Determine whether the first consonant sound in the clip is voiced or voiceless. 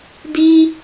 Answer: voiced